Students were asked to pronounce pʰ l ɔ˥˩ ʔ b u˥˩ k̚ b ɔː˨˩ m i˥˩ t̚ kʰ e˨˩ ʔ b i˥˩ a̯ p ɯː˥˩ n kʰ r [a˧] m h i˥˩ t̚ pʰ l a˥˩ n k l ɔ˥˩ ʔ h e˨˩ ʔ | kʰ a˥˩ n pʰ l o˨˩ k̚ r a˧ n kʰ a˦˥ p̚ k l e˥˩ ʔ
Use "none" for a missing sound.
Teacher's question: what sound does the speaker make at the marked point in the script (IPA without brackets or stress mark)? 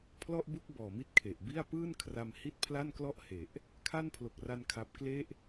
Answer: a˧